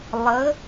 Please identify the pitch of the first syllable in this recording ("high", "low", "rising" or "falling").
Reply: rising